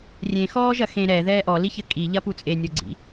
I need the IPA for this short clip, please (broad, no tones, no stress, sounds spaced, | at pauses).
rʲ ẽ x ɔː ʒ ɐ x ẽ ɾ ɛ ð ɛː ʔ ɔ l i ç ɘ kʼ i ʎ ɐ p u t͡sʼ e nʲ o ɡ͡ǀ ḭ